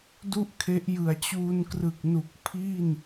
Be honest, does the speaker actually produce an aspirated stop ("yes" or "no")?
yes